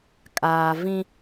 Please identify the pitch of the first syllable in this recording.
low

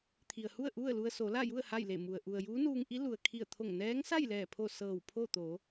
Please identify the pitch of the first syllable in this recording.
low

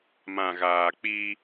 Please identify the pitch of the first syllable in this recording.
low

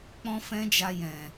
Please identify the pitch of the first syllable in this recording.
high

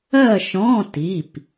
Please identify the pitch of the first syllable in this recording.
falling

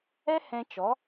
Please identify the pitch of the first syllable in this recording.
high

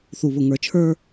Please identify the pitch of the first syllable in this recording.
low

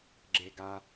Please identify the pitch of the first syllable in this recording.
low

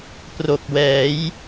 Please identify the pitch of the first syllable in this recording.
low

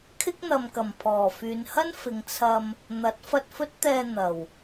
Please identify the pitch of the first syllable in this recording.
high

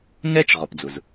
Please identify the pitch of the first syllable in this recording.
high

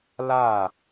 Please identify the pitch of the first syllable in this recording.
falling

